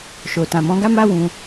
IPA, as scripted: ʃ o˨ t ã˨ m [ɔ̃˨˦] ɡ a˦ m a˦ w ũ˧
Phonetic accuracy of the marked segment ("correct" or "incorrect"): correct